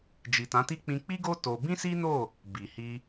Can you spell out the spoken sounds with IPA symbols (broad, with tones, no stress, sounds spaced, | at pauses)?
d͡ʒ i˨ t ã˨˦ t i˦ k͡p ĩ˧ k͡p i˦ ɡ o˦ t o˧ b ĩ˦ s i˦ n o˦˨ | b i˨ h i˧